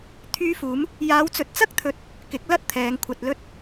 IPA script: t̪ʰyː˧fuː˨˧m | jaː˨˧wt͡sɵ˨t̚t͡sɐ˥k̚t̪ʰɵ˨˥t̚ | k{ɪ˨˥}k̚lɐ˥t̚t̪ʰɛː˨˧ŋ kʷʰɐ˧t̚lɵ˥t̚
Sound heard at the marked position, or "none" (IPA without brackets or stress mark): ɪ˨˥